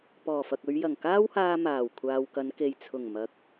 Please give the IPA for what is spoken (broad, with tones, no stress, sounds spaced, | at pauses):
p ɔː˨˩ f ɐ˨ k̚ ɵ˨˧ ɥ j ɐ˨˩ ŋ k aː˥ w h aː˧ m aː˨˩ w kʷʰ aː˨ w k ɐ˨˧ n k e˨ j t͡sʰ ʊ˨˩ ŋ m ɐ˨ k̚